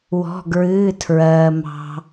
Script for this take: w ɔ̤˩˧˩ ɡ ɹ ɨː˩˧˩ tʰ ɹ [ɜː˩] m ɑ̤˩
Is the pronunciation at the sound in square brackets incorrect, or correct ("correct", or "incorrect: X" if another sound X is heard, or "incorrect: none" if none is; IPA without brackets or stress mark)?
correct